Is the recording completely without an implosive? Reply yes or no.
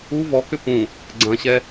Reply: yes